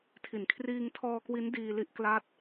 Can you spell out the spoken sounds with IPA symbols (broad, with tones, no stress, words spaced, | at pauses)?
tʰi˨˩n kʰriː˧ŋtʰɔː˧kwi˦˥n diː˧li˦˥ʔ kla˦˥t̚